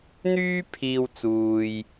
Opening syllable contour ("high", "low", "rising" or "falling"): high